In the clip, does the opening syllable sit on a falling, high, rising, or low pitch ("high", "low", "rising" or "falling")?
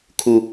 high